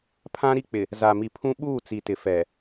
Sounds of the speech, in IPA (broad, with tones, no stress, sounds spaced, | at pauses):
pʰ ã˦ ɾ i˦ k͡p ɪ˨ | z a˨ m i˨ pʰ ũ˦ ɓ uː˦˨ t͡s i˨ t ɪ˨ f ɛ˨